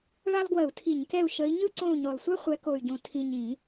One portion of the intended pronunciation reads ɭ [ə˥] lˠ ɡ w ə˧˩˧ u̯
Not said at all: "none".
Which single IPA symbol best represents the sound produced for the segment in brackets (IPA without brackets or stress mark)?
a˥